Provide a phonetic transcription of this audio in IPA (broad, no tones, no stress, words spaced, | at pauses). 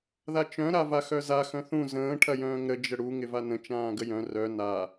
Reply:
ðat͡ʃœ̃ ɾavaxœza xœ̃θũ zə̃ː ʈʰɐjœ̃ːŋɾə d͡ʒəɽu ŋɪvanə̃ t͡ʃãːɡəjœ̃ rœ na